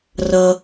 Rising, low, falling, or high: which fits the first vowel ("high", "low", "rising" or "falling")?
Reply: low